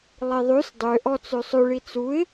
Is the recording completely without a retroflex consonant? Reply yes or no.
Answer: no